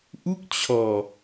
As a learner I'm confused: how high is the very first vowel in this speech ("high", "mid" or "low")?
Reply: high